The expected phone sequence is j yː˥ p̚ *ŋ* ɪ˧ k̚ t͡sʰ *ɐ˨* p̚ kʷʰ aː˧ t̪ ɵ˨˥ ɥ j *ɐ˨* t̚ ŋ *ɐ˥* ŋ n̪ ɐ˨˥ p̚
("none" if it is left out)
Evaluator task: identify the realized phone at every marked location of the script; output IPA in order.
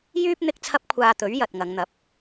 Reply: n̪, ɐ˥, ɐ˨, ɐ˨˧

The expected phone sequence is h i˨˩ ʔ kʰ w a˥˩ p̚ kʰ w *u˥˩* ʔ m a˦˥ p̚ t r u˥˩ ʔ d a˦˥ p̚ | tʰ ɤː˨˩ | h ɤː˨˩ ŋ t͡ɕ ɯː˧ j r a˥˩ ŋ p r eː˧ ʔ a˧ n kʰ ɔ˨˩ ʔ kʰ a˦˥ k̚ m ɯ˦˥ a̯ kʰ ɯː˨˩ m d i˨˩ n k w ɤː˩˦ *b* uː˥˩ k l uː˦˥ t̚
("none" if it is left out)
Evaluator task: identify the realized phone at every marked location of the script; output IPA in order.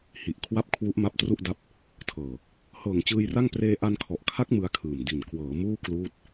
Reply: u˦˥, m

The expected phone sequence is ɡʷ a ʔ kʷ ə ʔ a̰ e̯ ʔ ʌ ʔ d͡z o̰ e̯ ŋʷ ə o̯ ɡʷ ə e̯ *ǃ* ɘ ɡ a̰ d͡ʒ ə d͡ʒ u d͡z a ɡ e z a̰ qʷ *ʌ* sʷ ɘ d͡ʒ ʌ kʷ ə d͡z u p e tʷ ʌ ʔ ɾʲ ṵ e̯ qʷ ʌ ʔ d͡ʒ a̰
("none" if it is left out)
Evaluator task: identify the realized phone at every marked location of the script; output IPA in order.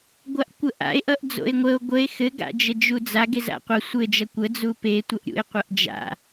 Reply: x, ʌ

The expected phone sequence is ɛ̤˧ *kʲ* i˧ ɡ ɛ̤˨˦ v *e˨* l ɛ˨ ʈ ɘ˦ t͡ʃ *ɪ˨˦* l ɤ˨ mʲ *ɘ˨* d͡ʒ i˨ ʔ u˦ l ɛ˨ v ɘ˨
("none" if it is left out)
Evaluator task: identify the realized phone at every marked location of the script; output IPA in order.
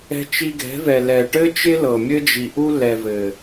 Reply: t͡ʃ, ɛ˨, ɪ˦, ɘ˦

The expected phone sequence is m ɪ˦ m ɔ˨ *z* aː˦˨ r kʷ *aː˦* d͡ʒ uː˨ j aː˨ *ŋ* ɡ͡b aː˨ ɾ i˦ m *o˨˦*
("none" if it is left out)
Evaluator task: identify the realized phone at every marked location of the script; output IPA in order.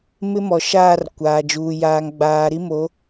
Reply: ʃ, aː˨, ŋ, o˨˦

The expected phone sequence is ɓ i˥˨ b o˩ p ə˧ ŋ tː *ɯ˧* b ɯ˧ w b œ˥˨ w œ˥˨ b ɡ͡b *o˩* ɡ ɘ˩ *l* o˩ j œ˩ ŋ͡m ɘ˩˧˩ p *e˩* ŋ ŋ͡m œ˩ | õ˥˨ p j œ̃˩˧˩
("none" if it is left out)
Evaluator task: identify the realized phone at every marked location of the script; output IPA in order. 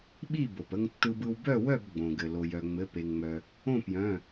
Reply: ɯ˧, õ˩, l, e˩

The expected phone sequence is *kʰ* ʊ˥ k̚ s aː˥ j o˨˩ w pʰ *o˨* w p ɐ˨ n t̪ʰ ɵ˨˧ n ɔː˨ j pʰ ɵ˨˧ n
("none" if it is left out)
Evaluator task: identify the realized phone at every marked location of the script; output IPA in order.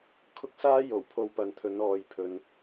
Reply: kʰ, o˧

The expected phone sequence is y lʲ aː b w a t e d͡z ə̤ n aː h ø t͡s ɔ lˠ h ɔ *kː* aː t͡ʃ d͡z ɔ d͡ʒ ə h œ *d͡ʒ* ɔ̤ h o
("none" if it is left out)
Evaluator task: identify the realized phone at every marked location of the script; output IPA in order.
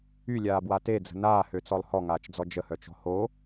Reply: ŋ, t͡ʃ

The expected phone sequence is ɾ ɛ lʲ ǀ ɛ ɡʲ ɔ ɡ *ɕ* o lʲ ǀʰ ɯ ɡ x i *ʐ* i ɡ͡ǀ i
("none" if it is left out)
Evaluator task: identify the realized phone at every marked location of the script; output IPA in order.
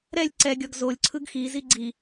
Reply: z, z

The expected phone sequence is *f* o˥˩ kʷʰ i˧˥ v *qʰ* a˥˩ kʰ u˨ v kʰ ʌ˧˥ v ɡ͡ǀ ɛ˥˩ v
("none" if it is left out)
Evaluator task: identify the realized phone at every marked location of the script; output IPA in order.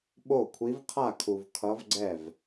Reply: ɓ, qʰ

